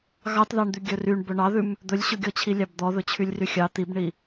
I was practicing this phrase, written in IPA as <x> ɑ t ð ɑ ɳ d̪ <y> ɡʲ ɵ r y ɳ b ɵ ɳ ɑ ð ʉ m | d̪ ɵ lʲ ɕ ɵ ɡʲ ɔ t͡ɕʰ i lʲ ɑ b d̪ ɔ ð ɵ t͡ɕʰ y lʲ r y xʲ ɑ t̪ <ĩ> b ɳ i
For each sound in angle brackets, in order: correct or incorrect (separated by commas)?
incorrect, correct, incorrect